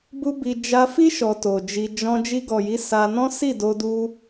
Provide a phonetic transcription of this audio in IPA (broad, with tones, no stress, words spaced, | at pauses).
bu˦ bi˧ d͡ʒa˧fi˦ ʃɔ˧to˨d͡ʒi˧ d͡ʒɔ̃˧ d͡ʒi˧ɡɔ˨ji˨˦ sa˧nɔ̃˦ si˦˨do˧ du˧